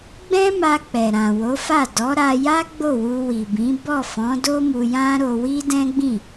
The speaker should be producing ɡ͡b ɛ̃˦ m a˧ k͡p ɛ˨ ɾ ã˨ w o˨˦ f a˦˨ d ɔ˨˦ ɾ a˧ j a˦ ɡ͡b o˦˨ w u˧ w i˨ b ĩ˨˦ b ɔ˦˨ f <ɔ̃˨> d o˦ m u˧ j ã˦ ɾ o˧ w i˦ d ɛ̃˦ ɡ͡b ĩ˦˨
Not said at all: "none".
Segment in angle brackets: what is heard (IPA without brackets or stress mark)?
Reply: ɔ̃˨˦